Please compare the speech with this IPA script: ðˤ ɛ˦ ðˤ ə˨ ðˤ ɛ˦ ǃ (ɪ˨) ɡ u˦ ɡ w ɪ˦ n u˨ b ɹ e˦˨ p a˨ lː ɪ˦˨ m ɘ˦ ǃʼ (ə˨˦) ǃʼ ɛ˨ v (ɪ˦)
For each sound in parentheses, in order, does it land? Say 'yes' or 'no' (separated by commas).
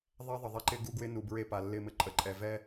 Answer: no, yes, no